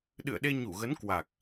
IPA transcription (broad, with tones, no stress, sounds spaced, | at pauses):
ɗ ɨ̰˧˨ ə̯ ɗ e˧ ɲ u˧˩ ɣ ə˨˦ n k w a˨˩ k̚